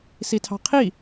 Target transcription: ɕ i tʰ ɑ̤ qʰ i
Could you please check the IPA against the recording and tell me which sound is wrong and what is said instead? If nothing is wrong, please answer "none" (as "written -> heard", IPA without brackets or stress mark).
ɕ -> s